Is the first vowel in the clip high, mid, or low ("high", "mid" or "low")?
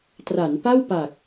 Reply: low